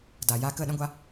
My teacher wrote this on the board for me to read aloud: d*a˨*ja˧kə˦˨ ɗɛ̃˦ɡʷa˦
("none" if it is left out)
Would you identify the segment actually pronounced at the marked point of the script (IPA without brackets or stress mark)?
a˨